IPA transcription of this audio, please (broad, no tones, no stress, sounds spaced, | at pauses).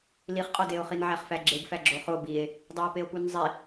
l i χ qʼ ɒ d e o̯ χ i n ʕ æ χ f æ ɡ͡ǁ e ɡ f æ ɡ͡ǁ o χ o b i e̯ | dˤ æ e̯ p e o̯ p u n zˤ i